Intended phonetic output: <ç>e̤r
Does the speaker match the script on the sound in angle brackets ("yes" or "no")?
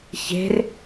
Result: yes